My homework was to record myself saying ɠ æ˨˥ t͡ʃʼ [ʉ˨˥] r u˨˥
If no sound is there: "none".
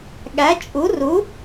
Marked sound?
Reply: u˨˥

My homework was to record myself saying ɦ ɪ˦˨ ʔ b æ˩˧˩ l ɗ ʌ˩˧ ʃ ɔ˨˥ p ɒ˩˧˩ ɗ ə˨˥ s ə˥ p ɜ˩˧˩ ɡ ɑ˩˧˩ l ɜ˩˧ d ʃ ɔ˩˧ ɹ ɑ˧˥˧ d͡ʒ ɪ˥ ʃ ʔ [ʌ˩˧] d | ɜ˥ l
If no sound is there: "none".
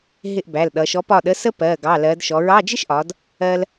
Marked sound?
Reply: ɒ˩˧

